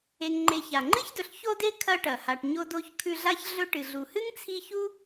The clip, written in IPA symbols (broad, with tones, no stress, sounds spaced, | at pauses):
e˨ ŋ ŋ͡ǃ e˨ ç a˩ ŋ͡ǃ ɨ˥ ç d ɵ˨ ɬ ç o˥ d e˥ kʰ ɐ˦ ʈ ɐ˩ h a˨ ʈ ɲ o˥ d o˥ ç kʰ ʉ˦ ɮ a˥ ç ɮ ɵ˦ ʈ ɨ˨ ɮ u˨ h ɨ˥ ŋ t͡sʰ i˦ ç u˥